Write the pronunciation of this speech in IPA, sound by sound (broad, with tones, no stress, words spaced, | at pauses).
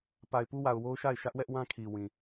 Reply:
pa˨ɪ̯pu˦wa˨ʊ̯wo˦ʊ̯ ʃa˦˨ɪ̯ʃä˦ʔ wɛ˦ʔwã˦kʰi˨ wĩ˨